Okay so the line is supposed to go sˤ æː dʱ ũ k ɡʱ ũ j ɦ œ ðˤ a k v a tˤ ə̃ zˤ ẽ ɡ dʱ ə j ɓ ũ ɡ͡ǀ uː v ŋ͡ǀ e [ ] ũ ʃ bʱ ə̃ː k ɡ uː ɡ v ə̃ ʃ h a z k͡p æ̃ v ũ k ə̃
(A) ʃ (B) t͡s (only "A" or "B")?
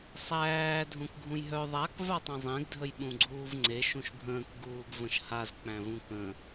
A